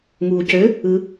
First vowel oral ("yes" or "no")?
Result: yes